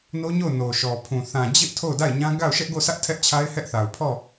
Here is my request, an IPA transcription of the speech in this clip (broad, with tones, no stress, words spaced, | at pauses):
no˦ɲo˦˨ʊ̯ no˨ʃɔ˨pʰũ˨ θã˨d͡ʑɪ˦ʔ tʰo˦˨ʊ̯da˦˨ɪ̯ɲã˦ ɡa˦˨ʊ̯ ʃɛ˦ʔɡo˦˨sʰä˦ʔ tʰɛ˦ʔt͡ɕʰa˦ɪ̯hɛ˦ʔθa˨ʊ̯ pʰɔ˦˨